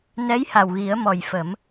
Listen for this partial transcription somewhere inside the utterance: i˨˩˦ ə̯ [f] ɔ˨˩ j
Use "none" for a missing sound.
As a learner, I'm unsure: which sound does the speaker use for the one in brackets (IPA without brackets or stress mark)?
m